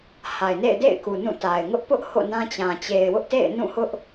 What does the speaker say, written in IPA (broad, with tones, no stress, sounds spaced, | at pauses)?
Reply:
h a˨ ɪ̯ n ḛ˦˨ ɪ̯ d ḛ˦˨ ɪ̯ k u˨ n ũ˦˨ t a˨ ɪ̯ ŋ ʊ˦ ʔ p ʊ˦ ʔ h o̰˦˨ n ã˦ t͡ɕ ã˨ t͡ɕ e˨ ɪ̯ w ʊ˦ ʔ t ḛ˦˨ ɪ̯ n ũ˦˨ h ʊ˦ ʔ